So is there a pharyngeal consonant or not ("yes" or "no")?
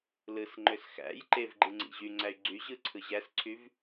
no